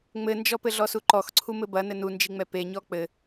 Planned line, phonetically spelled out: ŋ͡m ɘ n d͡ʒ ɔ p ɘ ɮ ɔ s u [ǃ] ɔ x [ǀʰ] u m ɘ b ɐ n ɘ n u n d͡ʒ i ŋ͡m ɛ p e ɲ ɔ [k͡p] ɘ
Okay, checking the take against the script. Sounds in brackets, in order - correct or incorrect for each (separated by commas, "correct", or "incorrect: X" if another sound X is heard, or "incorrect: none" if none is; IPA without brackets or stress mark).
correct, correct, correct